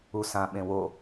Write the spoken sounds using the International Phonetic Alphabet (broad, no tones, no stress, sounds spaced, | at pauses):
u s ã ɓ ẽ w o